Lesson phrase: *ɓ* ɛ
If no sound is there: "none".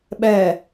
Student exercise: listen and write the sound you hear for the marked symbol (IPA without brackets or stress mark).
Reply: ɓ